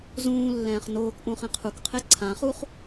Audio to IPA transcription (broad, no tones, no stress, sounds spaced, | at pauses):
z ũː lː ɛ̃ː χ n oː k ʔ ũ χ ɛ̃ qʰ u k qʰ e ǀʰ ã χ u χ